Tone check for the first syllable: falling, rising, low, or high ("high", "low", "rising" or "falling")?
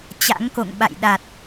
rising